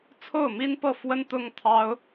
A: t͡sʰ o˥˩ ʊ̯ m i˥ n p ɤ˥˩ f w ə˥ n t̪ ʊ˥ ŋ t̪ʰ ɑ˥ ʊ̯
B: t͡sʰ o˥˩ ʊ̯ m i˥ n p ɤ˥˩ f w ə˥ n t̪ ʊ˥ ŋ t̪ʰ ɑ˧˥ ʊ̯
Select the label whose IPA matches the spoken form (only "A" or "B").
A